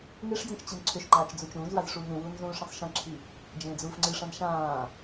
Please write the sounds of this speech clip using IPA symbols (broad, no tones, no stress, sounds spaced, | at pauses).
ŋ e ʂ d͡z ĩ t͡ʃ t͡ɕ i n ǀʰ ʏ ʃ ŋ͡ǃ aː t͡ʃ d͡z u t͡ʃ ũː z w a z ʂ uː ŋ ẽ w uː n z ũː ʂ ĩ sˤ ʃ ẽ ǁʰ i | d͡ʒ ẽː d͡z uː f ŋ͡ǀ ɨ ʂ ã n ʃ ãː